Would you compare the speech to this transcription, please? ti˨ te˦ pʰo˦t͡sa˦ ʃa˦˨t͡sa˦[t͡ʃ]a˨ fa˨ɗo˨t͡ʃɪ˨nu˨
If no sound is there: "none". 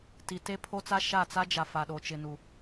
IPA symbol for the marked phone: d͡ʒ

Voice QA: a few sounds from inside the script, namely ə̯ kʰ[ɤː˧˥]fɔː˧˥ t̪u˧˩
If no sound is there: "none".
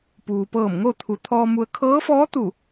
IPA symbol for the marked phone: ɤː˧˥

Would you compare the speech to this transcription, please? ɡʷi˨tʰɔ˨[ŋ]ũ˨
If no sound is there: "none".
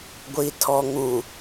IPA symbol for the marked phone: ŋ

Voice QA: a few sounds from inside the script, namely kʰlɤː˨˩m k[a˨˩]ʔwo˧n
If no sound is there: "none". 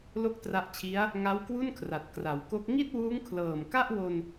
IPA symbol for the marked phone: a˥˩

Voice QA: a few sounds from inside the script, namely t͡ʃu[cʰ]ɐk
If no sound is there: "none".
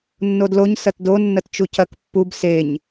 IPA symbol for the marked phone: cʰ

